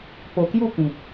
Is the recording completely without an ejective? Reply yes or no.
yes